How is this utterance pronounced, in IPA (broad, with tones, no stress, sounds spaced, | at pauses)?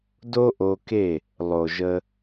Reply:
d o˦ ʔ o˧ k e˦˨ | lˠ o˨ ʒ ə˧